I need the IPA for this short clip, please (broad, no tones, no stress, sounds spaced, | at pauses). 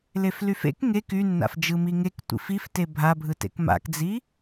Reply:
l e f l y f ḛ k ŋ e k y nː a̰ f d͡ʒ ɯ m i ŋ e k tʷ ḭ f i f t e bʱ a bʱ ɯ t ḛ k m a̰ k d͡z i